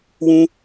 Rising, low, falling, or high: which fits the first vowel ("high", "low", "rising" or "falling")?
high